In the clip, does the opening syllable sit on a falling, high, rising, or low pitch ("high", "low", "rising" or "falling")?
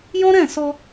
high